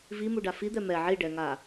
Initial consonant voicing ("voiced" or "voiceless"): voiced